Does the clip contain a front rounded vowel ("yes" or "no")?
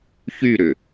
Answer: yes